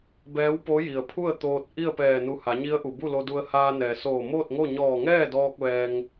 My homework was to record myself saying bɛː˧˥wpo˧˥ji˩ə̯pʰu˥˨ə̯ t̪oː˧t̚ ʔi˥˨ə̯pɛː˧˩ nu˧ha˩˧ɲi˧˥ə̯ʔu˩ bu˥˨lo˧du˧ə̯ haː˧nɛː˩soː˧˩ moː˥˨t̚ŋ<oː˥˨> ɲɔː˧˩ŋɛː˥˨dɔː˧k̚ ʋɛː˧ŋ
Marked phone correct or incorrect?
incorrect